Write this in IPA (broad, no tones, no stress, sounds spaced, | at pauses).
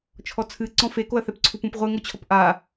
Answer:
t͡ʃʰ ɔ t͡sʰ ɨ ǀ ɔ̃ f e k o ɐ̯ θ ɛ p ǀʰ u p ũ p ʁʷ ɘ ŋ o t͡ɕʰ ɔ p ʔ a